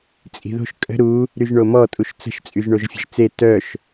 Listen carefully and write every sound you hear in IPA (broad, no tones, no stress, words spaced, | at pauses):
t͡sʼi̤ðo̤ʃ kʼə̤ ɾu | ɾyʒɳomɔ tʼuʃt͡sə̤ʃ t͡sʼyʒɳoʒfʲə̤ʒt͡se tœʃ